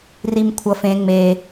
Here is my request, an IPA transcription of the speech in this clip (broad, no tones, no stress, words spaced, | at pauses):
rimkʷʰʌf ẽ ŋ͡me